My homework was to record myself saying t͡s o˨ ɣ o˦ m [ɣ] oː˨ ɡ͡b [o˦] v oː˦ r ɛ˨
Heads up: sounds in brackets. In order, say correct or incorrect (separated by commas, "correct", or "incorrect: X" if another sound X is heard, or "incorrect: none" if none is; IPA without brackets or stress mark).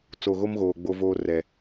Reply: correct, correct